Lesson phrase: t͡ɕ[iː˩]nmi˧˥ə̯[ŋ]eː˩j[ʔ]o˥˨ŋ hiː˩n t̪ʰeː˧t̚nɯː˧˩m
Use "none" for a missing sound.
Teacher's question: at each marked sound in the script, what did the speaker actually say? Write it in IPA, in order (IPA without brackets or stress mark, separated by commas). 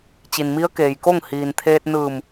i˩, k, k